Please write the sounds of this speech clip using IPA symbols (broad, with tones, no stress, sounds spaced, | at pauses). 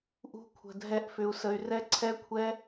ʔ ṳ˧ kʷʰ ə̤˨ dʱ ɛ˧ ʔ f ʏ˧ u̯ s ə˧ y̯ r ɛ˦ ǀʰ ɛ˧ kʷʰ ɛ˧